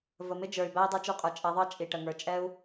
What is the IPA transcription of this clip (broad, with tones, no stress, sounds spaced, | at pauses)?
v ə˨ m ɪ˦ d͡ʒ ə˞˨ y̯ b æ˦ i̯ dˤ ɛ˦ t͡ʃ u˧ qʼ ə˞˨ t͡ʃʼ ɛ˨˦ ðˤ ɑ˦ t͡ʃʼ i˨ ʈ ə˨ ŋ ə˞˨ t͡ʃʼ ɛ˦ u̯